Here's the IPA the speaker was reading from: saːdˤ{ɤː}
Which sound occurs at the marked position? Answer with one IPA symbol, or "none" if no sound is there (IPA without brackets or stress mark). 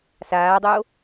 oː